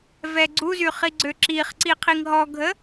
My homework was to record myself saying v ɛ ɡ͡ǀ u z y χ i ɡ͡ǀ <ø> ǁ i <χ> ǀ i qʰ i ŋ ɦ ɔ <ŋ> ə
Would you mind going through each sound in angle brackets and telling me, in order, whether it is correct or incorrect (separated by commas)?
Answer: correct, correct, incorrect